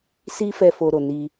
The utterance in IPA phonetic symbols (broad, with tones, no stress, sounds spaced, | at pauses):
s i˦ f ɛ˦ f o˧ ɾ o˨ n i˧